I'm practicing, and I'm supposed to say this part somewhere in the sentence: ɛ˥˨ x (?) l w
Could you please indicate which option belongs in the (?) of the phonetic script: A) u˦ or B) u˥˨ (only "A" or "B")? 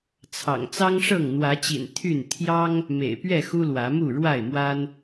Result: A